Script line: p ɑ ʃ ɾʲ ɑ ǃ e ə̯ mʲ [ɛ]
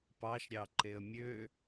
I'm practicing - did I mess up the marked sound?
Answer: yes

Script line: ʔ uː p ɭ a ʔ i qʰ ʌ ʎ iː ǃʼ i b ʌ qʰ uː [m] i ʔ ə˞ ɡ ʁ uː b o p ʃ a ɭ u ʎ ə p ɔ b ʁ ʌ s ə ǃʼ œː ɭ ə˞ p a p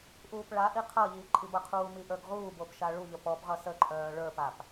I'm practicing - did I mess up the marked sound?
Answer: no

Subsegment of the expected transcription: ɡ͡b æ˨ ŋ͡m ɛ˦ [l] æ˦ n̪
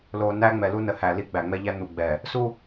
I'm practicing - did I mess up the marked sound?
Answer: yes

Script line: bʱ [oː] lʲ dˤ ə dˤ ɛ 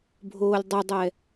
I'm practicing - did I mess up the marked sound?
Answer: no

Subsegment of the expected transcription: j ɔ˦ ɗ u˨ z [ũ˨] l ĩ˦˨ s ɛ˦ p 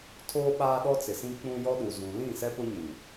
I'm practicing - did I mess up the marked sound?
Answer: no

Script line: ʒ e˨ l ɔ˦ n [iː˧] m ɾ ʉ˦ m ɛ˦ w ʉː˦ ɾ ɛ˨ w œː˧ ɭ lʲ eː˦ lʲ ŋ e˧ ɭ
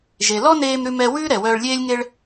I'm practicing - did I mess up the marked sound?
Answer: yes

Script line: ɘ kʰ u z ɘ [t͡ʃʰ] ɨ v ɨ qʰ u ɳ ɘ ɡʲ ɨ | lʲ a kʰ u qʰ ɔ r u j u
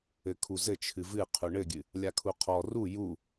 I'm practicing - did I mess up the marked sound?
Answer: no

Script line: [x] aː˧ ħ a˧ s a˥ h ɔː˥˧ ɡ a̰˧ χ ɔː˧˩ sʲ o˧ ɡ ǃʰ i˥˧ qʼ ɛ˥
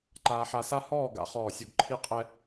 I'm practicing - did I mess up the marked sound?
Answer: yes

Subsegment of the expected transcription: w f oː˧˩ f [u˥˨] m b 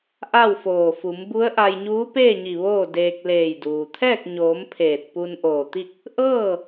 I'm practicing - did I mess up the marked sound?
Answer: yes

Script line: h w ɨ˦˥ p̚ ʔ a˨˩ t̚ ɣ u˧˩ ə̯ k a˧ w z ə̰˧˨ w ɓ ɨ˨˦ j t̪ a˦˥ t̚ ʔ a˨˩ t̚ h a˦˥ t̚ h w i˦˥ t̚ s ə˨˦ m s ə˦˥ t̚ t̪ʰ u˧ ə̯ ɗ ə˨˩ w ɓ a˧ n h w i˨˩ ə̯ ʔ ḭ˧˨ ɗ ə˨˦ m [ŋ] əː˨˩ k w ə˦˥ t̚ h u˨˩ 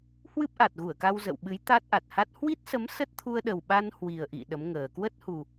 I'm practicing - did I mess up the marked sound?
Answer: no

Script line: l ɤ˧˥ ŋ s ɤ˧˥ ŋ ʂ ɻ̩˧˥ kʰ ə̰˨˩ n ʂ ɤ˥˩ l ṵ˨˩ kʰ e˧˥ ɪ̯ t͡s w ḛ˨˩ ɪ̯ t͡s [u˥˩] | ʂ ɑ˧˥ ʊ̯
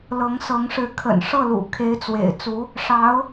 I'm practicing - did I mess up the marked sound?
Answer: yes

